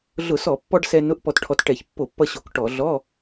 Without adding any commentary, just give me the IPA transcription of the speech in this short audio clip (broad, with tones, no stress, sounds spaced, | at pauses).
ɮ ʊ˧˩˧ s ɔ˧˩˧ pː ɔ˧ ɖ s ɛ˧ n ʊ˧˥˧ ʔ p ɔ˧ t ʈʰ ɔ˧ t ʈ ɛ˧˩˧ ç pː o˧˩˧ pː ʌ˧ ɕ o˧˩˧ k ʈ ɔ˧˩˧ ɮ ɔ˧˥˧